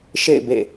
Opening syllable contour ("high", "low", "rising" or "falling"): falling